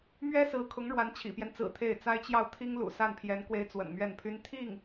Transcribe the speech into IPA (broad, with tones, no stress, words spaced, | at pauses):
mɥɛ˥sɹ̩˧˥ kʰʊ˧˥ŋɻwa˧˥n t͡ɕʰḭ˨˩pjɛ˦nt͡sɹ̩˨˩ t̪ʰe˥˩ɪ̯t͡sa˥ɪ̯ t͡ɕjɑ˥˩ʊ̯t̪ʰi˥ŋlṵ˨˩ sa˥˩npʰjɛ˧˥n kwe˧˥ɪ̯ t͡swə̰˨˩nmɥɛ˥˩npʰy˥n t̪ʰi˥˩ŋ